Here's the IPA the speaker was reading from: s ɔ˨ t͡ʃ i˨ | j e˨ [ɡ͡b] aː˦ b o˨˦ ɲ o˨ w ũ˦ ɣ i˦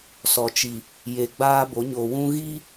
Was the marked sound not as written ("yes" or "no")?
no